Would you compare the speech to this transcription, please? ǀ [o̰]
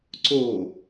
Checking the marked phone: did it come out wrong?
yes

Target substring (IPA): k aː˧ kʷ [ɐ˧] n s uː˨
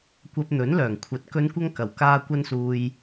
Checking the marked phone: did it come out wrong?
no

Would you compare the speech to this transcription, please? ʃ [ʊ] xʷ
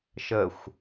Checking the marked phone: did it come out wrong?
yes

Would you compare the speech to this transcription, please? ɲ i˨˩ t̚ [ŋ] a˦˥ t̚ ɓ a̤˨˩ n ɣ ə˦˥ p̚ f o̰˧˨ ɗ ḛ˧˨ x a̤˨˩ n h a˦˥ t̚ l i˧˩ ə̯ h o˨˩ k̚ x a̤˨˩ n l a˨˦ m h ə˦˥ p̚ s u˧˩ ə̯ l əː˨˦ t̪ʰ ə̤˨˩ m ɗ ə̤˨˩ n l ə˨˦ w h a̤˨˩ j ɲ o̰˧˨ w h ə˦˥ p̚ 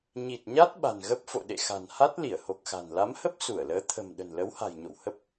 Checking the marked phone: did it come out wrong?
yes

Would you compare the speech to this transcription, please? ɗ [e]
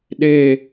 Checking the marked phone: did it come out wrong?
no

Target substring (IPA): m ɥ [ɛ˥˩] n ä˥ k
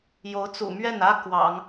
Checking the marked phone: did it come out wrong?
no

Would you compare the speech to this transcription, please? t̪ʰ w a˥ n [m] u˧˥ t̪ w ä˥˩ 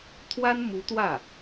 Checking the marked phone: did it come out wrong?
no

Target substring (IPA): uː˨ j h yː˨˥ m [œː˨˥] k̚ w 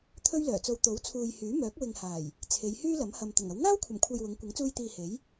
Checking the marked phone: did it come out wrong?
no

